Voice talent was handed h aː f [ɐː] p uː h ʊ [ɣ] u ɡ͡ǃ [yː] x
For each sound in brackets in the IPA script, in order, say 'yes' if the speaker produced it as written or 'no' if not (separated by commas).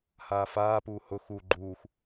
no, no, no